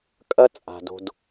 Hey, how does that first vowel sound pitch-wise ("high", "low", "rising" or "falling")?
high